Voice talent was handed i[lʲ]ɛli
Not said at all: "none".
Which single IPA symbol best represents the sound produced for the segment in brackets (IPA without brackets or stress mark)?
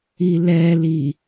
l